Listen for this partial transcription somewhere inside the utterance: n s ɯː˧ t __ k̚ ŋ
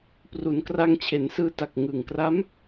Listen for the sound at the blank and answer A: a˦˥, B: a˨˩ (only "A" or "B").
B